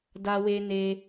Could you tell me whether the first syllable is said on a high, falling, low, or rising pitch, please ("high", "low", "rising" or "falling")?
high